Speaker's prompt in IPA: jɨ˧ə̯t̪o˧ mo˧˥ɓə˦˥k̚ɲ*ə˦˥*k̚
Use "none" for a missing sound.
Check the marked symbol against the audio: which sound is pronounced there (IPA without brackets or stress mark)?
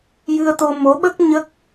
ə˦˥